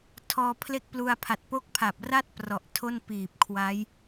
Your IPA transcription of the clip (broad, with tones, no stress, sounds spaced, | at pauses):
tʰ ɔː˧ pʰ l e˥˩ k̚ p l u˧ a̯ pʰ a˨˩ t̚ p o˦˥ k̚ pʰ a˨˩ p̚ r a˥˩ t̚ p r ɔ˨˩ ʔ tʰ o˥˩ n p iː˨˩ p̚ kʰ w a˦˥ j